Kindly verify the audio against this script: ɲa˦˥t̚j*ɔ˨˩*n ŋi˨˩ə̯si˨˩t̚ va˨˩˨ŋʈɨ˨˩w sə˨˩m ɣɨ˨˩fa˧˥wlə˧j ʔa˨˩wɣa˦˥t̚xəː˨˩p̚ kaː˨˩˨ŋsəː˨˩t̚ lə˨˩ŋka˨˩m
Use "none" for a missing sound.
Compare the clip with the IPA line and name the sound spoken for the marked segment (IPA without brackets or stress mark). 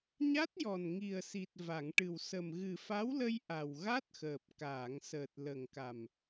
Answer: ɔ˨˩